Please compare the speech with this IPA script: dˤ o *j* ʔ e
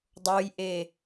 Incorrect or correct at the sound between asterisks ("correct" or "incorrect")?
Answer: correct